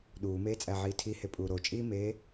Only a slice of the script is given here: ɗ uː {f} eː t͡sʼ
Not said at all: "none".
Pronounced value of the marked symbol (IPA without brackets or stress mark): m